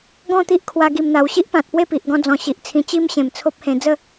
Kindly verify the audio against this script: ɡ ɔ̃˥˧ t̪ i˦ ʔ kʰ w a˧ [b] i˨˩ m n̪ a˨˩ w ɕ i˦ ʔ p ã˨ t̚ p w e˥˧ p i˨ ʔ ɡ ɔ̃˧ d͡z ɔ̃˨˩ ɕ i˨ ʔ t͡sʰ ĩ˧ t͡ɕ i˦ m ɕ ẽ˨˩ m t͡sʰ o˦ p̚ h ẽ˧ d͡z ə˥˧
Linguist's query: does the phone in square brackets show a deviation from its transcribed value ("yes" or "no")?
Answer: yes